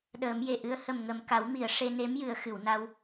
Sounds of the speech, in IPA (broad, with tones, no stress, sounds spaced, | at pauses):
ɗ əː˨˩˦ m j e˨˩˨ ʔ ɨ˧˥ ə̯ h ə˨˩ m ŋ ə˨˩ m k a˨˩˦ w m i˨˩˨ ə̯ ʂ e˧ n e˧˥ m j ɨ˨˩˦ ə̯ x ɨ˨˩˨ w n a˧ w